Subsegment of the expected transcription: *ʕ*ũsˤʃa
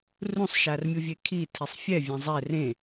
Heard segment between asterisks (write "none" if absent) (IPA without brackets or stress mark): r